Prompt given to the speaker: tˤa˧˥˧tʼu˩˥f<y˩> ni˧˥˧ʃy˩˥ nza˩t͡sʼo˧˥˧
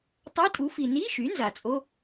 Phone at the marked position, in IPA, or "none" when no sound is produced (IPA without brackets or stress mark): i˩